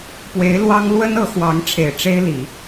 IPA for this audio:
p w e˧˥ ɪ̯ l w ɑ˥ ŋ l w ə˥ n ɤ˧˥ x w ɑ˧˥ ŋ ʈ͡ʂʰ e˨˩ ɪ̯ ʈ͡ʂ e˥ ɪ̯ l i˨˩˦

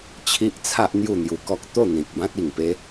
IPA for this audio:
t͡ɕʰ i˦ ʔ t͡sʰ a˦ ʔ n̪ j u˥˧ n̪ j u˧ k ɔ˦ k̚ t̪ o˥˧ n̪ ĩ˨ k̚ b ã˦ t̚ i˨˩ ŋ p e˦

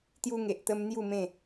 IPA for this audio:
t̪ j u˧ ŋ e˨ ʔ t̪ ə˧ m n̪ j u˥˧ m ẽ˥˧

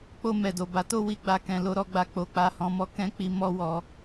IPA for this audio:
k͡p o˧ m ɛ˨ d o˨ b a˨˦ t o˦ w i˧ ɡ͡b a˧ k ɛ̃˨ l o˨˦ ɾ ɔ˧ ɡ͡b a˧ k͡p o˨ k͡p a˧ h ɔ̃˧ m ɔ˦ k ɛ̃˦ k͡p i˧ m ɔ˦ w ɔ˧

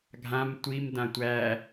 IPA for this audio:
ɡʱ ã m tʷ i m d ã tʷ æ

